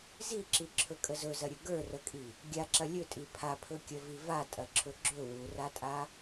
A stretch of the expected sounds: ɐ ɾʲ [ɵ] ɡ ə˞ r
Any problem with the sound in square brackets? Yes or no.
no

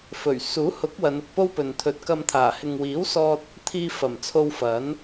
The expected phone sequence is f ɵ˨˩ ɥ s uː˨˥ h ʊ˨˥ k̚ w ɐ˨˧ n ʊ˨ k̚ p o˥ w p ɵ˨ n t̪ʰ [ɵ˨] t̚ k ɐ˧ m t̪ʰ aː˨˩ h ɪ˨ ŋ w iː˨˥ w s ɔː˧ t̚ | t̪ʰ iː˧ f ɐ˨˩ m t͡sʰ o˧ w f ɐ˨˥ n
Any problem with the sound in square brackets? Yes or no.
no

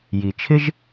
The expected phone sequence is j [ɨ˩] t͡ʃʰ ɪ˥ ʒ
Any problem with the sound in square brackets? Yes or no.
yes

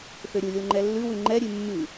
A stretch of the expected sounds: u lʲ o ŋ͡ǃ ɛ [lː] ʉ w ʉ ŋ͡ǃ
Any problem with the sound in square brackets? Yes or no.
no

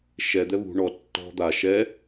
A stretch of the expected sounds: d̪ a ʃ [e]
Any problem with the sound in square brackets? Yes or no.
yes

